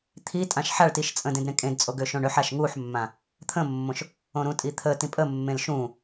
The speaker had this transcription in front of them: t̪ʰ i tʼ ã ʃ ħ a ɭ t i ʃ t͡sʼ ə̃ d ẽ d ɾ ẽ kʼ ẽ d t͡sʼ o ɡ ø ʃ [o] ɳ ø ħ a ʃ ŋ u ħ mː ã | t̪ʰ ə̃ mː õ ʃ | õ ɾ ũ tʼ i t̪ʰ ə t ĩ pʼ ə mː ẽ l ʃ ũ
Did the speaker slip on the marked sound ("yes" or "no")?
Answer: yes